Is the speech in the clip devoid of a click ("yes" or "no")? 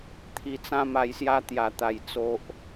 yes